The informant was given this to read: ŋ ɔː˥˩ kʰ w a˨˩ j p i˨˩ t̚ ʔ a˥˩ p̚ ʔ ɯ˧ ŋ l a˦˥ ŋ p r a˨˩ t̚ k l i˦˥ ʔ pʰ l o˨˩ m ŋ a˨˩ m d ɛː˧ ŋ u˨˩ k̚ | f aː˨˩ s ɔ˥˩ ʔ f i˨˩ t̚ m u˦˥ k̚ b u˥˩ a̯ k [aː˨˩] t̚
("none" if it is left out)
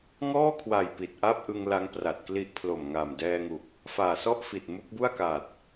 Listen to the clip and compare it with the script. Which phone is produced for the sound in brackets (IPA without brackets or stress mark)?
aː˨˩